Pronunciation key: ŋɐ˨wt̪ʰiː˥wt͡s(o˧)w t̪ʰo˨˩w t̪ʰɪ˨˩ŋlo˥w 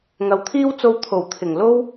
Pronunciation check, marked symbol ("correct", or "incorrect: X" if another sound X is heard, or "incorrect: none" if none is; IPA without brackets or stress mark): correct